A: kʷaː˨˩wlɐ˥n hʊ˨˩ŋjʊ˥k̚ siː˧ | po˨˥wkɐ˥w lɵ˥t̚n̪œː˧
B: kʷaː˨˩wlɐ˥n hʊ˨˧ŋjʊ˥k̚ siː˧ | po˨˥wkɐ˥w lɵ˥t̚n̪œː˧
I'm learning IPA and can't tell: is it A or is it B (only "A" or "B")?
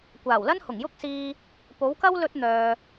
A